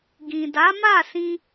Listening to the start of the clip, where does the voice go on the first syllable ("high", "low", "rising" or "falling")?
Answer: low